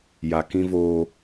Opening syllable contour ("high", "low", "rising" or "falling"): low